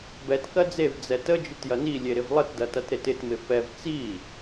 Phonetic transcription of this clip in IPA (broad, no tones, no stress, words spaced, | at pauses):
bɛt kɜd͡zev d͡zɛtə d͡ʒɪtjɐni lʲeɾɪvlˠət dɐtɐtɾetɪt mɪfɛv t͡si